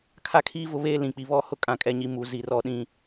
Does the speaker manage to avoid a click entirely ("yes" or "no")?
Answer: yes